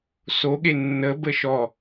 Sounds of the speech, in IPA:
soɠe nːə bəʃɔ

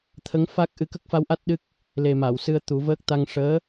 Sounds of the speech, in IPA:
t̪ʰə˧˥ŋfa˦˥k̚ʔɨ˧˥ kə˦˥k̚fa˧˥wʔa˦˥t̚ ɗɨ˦˥k̚ | le˨˩ ma˨˩˨wsɨ˧ə̯ t̪u˨˩˦vəː˦˥k̚ t̪a˧ŋ ʂəː˧˥

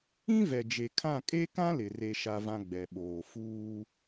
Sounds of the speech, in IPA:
ĩ˦vɛ˨d͡ʒe˨kʰã˦˨ kʼe˦kã˦lɪ˨ re˦ʃa˦vã˦ ɡ͡bɛ˨ɓoː˨ fuː˦

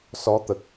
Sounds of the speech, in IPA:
sɔ˧˥t̪ə˨˩k̚

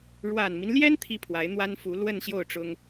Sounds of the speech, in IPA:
ɻwa˨˩nmi˦nljɛ˥n t̪ʰi˥pʰwa˧˥ɪ̯n̪wa˥n fu˧˥lwə˥˧nɕjo˥˩ʊ̯ʈ͡ʂʊ˥ŋ

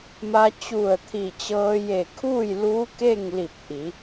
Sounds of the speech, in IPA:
ma˧ t͡ɕu˧˩ə̯t̪ʰi˧˩t͡ɕɤː˧ je˧˩kʰuː˥˨jluː˧˥ ke˥˨ŋ li˧˩p̚ʔi˩˧

